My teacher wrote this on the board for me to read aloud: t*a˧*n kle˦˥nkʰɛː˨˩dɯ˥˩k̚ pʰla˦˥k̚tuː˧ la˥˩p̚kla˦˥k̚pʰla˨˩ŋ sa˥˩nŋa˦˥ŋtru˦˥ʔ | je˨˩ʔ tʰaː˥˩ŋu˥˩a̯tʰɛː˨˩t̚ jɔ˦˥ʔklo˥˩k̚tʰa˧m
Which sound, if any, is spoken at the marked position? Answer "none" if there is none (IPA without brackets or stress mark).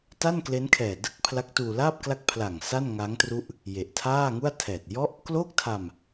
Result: a˥˩